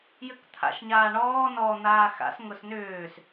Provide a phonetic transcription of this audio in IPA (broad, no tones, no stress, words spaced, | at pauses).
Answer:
jʏkt̪ʰa̰ʃɲaːɳɔː nɔ n̪aːxa̰s ŋʊsnʏːs